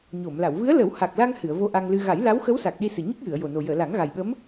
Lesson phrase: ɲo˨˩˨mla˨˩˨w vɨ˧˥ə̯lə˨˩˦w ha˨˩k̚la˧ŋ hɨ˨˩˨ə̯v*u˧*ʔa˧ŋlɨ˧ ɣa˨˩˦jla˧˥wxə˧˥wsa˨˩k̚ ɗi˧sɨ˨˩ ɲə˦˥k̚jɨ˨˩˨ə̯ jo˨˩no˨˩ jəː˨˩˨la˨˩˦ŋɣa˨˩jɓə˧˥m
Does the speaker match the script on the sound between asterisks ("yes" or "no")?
no